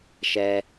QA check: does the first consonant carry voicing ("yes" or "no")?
no